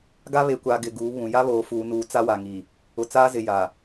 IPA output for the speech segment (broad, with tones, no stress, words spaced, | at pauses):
ɡa˦ βe˨kʷaː˨ ɡɪ˨ɡuː˨˦βũ˨ ja˦βoː˨fuː˨nuː˨ t͡sa˦wa˨ŋiː˨ | ʊ˨t͡saː˦zɪ˨ jaː˨